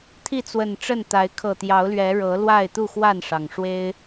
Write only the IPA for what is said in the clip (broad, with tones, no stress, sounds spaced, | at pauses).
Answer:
t̪ʰ i˥˨ t͡s w ə˨˩ n ʈ͡ʂ ə˥˨ n t̪ a˨˦ ɪ̯ kʰ ɤ˨˩ t̪ j ɑ˨˦ ʊ̯ l ɥ ɛ˨˦ ɻ ɤ˨˦ l w a˥˨ ɪ̯ t̪ u˥˨ x w a˥˨ n ʂ ɑ˩ ŋ ʂ w e˦ ɪ̯